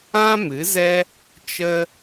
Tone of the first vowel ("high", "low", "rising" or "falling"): high